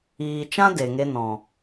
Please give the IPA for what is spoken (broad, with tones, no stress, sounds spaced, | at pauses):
iː˨ t͡ʃ ã˦ d e˨ ŋ e˧ n ɔ̃˨